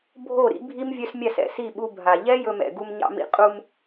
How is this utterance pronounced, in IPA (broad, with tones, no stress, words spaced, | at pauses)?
bʱo˦˨ ɾḭ˦bʱi˦m vʲœ˦smʲa˦˨s ɛ̰˨si˦˨ɓu˧ bʱa˨ ʎɛ˦ jɵ˧mɛ̰˨ ɡu˧mɲɑ̰˧mḭ˧ qʼu˧m